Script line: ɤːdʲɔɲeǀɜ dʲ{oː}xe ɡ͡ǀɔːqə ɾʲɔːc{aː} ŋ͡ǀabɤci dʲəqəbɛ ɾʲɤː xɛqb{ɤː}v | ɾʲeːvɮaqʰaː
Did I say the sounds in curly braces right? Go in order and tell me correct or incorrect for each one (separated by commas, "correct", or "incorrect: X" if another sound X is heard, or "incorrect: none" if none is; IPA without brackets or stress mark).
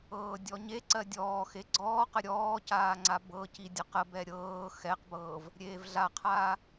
incorrect: ɔː, correct, correct